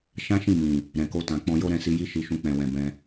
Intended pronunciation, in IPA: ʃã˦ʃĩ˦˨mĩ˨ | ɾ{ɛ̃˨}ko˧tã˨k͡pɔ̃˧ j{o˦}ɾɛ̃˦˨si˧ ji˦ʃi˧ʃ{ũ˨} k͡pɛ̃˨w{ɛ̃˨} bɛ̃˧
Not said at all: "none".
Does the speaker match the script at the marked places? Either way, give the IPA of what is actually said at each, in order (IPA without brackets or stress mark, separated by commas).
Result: ɛ̃˨, o˦, ũ˧, ɛ̃˨